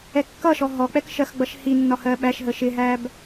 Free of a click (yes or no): yes